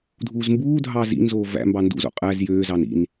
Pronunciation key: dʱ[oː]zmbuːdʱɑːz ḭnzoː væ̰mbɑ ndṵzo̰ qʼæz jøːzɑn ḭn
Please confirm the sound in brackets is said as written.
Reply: no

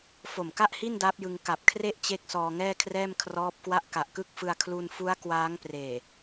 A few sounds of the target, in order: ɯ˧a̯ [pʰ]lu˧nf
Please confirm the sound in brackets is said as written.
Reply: no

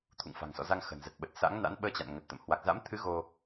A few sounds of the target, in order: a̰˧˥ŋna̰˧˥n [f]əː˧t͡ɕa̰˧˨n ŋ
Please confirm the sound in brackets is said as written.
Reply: no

